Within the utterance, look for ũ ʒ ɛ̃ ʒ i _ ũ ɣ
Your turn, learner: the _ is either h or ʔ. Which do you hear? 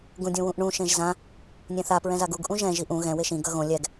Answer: ʔ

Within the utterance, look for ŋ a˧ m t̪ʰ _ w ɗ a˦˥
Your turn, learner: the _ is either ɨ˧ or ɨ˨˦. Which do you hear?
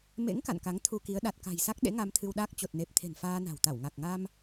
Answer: ɨ˧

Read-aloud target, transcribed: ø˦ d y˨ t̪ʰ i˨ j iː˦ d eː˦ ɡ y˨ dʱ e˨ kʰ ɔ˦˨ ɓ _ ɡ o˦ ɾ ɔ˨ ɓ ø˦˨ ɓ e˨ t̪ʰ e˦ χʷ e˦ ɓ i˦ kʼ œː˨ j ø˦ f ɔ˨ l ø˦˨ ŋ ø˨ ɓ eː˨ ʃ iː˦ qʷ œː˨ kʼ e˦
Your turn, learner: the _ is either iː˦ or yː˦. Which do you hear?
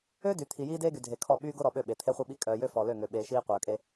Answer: yː˦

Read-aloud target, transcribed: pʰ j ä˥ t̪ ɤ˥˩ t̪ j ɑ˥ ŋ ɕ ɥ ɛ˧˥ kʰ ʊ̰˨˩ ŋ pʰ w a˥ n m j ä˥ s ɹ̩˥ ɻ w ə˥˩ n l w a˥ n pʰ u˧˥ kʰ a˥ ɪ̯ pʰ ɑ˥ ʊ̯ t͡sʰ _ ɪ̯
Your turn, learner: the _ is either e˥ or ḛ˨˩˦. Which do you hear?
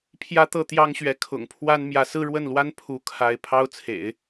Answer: ḛ˨˩˦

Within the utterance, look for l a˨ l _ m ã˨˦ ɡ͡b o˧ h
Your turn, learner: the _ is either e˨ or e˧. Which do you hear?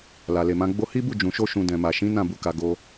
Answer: e˨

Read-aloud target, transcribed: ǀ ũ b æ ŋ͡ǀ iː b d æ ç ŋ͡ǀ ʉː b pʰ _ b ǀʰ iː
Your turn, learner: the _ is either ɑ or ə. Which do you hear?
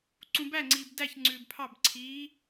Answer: ɑ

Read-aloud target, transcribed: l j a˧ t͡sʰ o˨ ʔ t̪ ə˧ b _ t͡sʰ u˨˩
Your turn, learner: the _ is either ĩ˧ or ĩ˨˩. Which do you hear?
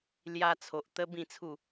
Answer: ĩ˨˩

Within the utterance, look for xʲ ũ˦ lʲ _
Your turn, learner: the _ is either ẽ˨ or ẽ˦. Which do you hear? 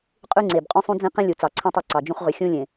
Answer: ẽ˨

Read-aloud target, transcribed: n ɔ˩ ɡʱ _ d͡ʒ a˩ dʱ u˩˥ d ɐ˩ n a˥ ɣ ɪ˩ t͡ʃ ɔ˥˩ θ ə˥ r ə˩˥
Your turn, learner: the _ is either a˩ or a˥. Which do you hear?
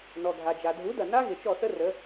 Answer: a˩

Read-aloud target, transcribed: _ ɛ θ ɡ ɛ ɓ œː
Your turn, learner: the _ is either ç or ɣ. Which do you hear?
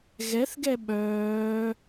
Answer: ɣ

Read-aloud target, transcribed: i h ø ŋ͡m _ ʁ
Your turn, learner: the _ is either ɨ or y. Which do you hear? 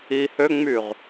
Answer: y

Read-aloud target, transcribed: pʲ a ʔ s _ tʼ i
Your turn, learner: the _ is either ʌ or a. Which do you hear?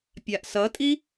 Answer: ʌ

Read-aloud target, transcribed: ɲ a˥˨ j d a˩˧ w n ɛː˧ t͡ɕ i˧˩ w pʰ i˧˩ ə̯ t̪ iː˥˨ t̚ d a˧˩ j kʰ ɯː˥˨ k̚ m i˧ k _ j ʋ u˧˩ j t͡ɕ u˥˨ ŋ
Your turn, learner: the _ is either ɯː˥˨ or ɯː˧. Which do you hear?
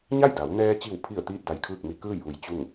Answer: ɯː˥˨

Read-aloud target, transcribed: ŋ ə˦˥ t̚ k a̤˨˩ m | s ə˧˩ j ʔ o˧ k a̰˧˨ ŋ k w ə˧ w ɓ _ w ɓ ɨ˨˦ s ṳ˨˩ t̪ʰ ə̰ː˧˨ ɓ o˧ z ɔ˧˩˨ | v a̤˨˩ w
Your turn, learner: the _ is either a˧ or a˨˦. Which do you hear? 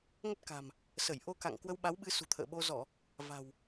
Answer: a˨˦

